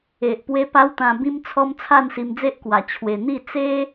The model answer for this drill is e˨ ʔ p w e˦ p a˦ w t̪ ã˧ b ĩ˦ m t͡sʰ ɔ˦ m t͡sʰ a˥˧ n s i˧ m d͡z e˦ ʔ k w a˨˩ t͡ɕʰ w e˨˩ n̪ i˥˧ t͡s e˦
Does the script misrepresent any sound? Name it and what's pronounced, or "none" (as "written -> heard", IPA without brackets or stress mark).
none